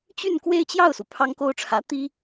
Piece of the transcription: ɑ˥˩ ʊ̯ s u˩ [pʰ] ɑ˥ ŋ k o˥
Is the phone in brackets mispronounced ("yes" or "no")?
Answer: no